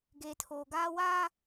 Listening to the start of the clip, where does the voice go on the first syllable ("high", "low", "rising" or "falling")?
low